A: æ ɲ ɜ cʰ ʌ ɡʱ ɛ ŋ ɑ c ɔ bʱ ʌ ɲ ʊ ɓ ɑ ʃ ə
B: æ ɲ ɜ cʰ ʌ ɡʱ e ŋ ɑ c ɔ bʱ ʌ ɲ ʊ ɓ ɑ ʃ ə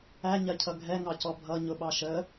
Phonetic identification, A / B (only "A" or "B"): A